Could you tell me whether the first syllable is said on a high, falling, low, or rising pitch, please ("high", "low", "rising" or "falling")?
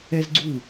high